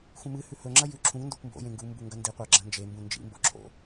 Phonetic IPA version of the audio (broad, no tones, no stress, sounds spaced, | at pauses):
x ũ m ɨ h ʉ h ɵ ŋ͡ǁ ɐ j ʉ ǁʰ ũ ŋ n d o kʷ m b o̰ j ẽ ŋ ɡ u m b u ŋ ɡ ɐ n d i qʷ a ɡ͡ǁ ɐ̃ n d͡ʒ e m b ũ n d͡ʒ ḭ m b o̰ ǁʰ o̰